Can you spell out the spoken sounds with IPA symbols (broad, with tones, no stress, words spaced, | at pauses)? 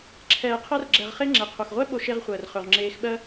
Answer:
ǁʰɛː˨qʰɜ˧rɡ͡ǁɛ˨ʁχe˧ ŋ͡ǁɛ˨qʰo˨xʁʷɛ˦ ɓo˧ʃe˧ʁχʷəː˨rχɵ˨ʁ ŋ͡ǁeː˧xɓɜ˦